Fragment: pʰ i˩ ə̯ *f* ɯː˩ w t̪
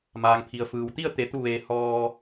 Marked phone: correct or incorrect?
correct